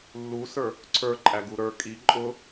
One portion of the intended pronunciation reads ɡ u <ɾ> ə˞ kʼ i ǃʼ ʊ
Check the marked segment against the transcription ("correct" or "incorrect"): correct